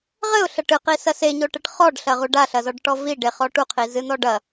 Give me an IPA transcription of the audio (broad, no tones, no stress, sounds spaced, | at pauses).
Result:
ʁ ɘ ʊ̯ ɬ ɐ ʈ ɨ q i s ɐ s e ɲ o ʈ ɘ ʈ χ ɔ ɖ ɬ ɐ ʁ u ɖ a ɬ ɐ z ɔ ɖ ʈ ɔ v i ɖ e χ ɔ ʈ u qʰ i z ɨ n̪ ɔ ɖ ɐ